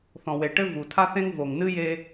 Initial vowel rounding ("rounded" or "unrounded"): rounded